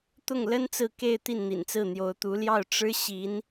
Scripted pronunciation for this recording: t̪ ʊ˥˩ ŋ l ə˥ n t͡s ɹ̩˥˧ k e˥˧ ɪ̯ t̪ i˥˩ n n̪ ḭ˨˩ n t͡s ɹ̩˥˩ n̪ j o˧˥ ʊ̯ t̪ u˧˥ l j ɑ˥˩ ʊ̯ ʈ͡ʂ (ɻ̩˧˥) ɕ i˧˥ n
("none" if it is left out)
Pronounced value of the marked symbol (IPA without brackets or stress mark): ɻ̩˥